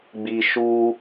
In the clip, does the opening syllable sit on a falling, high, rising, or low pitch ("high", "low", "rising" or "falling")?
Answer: low